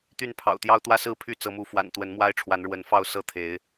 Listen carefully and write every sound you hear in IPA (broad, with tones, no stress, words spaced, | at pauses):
t̪y˥˨npʰɑ̰˨˩ʊ̯t̪jɑ˦ʊ̯ t̪wä˦ sɹ̩˥˨ pʰy˥˨t͡sɤ˨˦mu˨˦ fwa̰˨˩n t̪wə˨˦nmwa˦ɪ̯ ʈ͡ʂʰwa˨˦nɻwə˨˦n fɑ˥˨ʊ̯sɤ˥˨ t̪ʰe˨˦ɪ̯